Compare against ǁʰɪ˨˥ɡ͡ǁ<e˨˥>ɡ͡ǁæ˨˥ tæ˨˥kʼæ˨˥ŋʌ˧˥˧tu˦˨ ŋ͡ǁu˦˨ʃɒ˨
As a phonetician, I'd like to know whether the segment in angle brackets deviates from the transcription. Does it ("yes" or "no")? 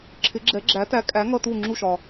yes